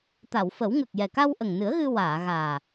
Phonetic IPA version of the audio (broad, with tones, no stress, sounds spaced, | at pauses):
t̪ a˨˩˨ w f ə˨˩˦ w ŋ ə˨˩ k̚ j ɛ˨˩ k a˧ w ʔ ə˨˩ ŋ n ɨ˨˩˦ ə̯ ɣ ɨ˧ w aː˨˩˨ ɣ aː˨˩